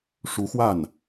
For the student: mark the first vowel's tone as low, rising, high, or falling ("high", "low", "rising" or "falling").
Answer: rising